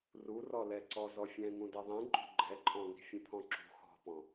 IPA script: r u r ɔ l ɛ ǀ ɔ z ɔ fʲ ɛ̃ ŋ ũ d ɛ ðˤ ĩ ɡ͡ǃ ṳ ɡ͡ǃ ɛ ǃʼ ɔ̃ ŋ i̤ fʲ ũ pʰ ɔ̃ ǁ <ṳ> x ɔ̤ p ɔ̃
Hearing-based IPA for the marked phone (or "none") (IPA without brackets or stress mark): ṳ